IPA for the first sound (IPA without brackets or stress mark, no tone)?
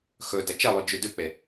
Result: x